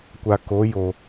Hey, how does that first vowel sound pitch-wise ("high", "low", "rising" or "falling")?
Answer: low